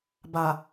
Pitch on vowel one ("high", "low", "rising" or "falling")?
low